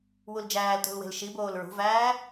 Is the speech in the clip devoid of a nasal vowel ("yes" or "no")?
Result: yes